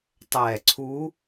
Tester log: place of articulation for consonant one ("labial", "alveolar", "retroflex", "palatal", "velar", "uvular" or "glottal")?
alveolar